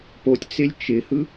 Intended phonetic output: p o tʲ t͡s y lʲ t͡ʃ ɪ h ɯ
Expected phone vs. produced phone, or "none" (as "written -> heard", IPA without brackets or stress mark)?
y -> ɪ